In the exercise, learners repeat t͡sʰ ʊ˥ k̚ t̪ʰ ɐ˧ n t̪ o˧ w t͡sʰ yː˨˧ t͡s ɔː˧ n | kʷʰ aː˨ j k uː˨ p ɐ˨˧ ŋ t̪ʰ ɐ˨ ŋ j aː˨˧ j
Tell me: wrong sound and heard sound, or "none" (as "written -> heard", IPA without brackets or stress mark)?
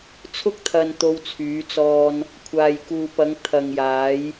none